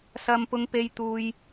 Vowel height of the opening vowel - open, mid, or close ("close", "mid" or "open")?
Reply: open